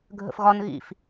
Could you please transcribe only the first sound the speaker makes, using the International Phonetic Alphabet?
ɡʱ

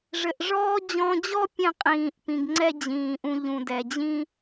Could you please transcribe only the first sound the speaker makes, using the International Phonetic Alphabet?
ʐ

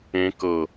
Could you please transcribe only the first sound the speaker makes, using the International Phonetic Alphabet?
ẽ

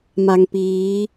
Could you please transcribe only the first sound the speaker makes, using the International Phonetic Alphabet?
m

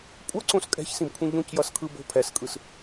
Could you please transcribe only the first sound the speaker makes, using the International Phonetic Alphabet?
kʷʼ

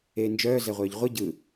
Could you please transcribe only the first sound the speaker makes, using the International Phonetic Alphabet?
eː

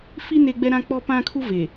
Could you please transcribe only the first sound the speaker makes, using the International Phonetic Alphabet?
f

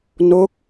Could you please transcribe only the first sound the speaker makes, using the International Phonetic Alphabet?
n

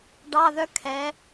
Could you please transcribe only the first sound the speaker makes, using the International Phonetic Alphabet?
ɖ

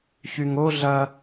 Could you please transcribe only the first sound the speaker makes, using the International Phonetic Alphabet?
ç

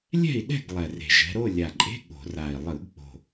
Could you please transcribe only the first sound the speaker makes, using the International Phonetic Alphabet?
lʲ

